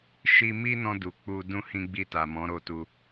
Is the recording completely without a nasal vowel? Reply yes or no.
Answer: no